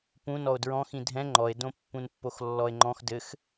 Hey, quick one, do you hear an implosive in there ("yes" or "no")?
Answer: no